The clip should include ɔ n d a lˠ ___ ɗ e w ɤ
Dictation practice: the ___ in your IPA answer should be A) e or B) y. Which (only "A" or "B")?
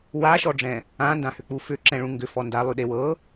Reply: B